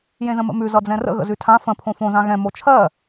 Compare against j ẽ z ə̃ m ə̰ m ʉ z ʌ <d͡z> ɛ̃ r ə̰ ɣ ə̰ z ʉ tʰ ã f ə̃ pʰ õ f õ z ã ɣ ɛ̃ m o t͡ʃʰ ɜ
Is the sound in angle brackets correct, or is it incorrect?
correct